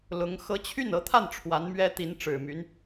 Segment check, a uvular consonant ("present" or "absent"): absent